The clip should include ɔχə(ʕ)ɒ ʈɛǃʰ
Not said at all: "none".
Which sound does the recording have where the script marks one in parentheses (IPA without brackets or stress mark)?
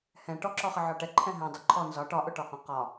ʕ